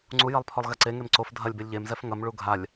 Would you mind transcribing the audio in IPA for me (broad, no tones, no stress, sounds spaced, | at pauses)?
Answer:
ŋ͡ǀ u j ɐ lˠ pʰ ɔ lˠ ɣ ɛ ǀ e ŋ e m ǀ o f dʱ ɐ lʲ b e lʲ ʎ e m z ɛ f ŋ ɐ m ɭ u ɡʱ a lʲ